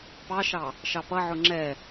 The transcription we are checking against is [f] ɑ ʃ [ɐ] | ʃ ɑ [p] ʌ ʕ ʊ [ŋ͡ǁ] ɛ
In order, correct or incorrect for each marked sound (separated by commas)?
incorrect, incorrect, correct, correct